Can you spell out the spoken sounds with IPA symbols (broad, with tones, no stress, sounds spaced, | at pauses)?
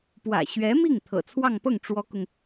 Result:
p w ä̰˨˩ ɕ ɥ ɛ˧˥ m i˥˩ ŋ t̪ʰ ɤ̰˨˩ t͡sʰ w ɑ˥˧ ŋ p ɤ˥˩ ŋ ʈ͡ʂ w ɔ˥ k ʊ˨ ŋ